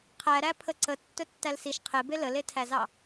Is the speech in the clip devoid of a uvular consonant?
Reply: no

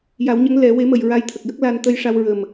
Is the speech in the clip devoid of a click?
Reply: yes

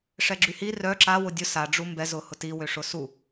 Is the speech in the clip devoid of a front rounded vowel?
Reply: no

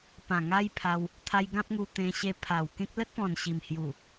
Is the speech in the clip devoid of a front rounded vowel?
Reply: yes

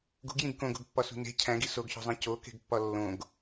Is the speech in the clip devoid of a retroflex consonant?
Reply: yes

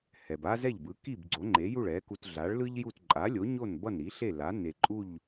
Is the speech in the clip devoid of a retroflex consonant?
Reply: no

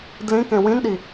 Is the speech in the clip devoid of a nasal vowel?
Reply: no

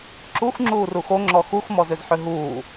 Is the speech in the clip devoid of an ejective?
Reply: yes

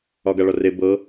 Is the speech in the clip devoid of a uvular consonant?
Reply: yes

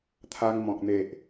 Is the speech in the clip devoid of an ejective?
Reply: yes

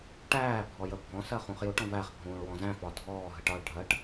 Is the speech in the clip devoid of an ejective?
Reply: yes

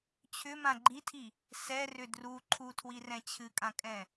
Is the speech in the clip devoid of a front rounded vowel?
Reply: no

